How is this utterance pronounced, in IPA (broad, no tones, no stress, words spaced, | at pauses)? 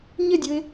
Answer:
ɲɪdʲʊɪ̯